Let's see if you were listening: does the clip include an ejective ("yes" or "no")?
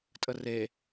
yes